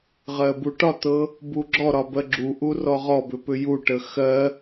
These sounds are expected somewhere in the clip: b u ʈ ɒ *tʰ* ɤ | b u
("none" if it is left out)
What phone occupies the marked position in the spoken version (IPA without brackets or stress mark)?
t̪